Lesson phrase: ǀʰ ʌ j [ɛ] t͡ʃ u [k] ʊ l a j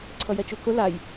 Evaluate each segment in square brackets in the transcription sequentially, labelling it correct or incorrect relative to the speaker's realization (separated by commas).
correct, correct